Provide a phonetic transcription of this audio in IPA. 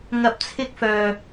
ŋɐ˧p̚t͡sʰɪ˥k̚ fœː˨

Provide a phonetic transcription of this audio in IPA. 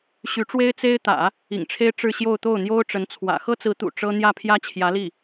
ɕy˧˥ʈ͡ʂwe˥ɪ̯ t͡se˥ɪ̯t̪ä̰˨˩˦ | ḭ˨˩ŋʈ͡ʂʰe˥ɪ̯ ʈ͡ʂɻ̩˥˧ɕjo˥˧ʊ̯ t̪o˥˩ʊ̯n̪jo˥ʊ̯ʈ͡ʂə˧˥nt͡sʰwä̰˨˩ xɤ˥t͡sɹ̩˧˥t̪ṵ˨˩ ʈ͡ʂɤ˥ n̪jä˥˩pʰjä˥ t͡ɕʰjä˧˥li˥˩

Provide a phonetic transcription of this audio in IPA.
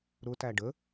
ɾʊtæɖ ə

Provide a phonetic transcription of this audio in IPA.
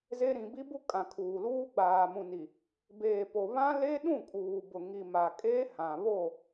ze˦ ɾĩ˨bi˦bu˦kʼã˨ kʰuː˨luː˦ ɡ͡baː˨mũ˨ni˨ | beː˨po˨ βã˦ le˦ɗũ˦˨kʼuː˨ bʊ˨ ŋi˨ ma˨kʼeː˦hã˨ βo˦˨

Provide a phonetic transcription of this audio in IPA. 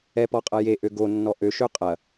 ɛpɔqʼɐ jeʔø ɡonːɔ ʔøʃø qʼɐ

